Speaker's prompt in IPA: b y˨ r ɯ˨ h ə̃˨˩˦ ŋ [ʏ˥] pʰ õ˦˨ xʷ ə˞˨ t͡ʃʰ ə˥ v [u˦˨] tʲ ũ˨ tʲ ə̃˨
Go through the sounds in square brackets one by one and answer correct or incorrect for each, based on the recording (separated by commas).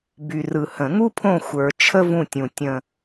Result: incorrect, incorrect